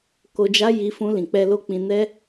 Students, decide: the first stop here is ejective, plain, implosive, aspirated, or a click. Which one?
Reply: plain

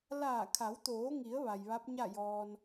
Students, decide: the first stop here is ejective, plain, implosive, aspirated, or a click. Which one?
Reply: aspirated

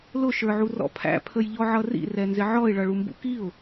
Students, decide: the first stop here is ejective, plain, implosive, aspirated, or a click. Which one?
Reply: aspirated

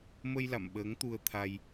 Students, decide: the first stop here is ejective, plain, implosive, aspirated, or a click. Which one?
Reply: implosive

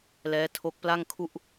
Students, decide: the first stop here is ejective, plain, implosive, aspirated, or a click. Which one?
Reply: aspirated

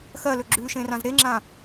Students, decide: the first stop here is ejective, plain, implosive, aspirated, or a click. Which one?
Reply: click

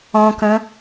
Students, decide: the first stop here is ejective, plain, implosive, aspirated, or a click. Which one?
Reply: plain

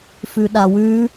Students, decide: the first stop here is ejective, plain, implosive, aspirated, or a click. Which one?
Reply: implosive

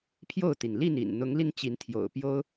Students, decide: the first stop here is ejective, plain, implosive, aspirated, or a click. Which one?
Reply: aspirated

